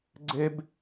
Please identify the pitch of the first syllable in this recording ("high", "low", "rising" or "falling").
high